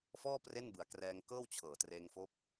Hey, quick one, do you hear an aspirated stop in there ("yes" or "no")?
yes